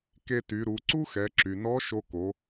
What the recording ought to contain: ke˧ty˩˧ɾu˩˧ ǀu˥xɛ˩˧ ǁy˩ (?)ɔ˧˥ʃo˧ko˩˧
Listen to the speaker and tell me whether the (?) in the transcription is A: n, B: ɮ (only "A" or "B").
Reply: A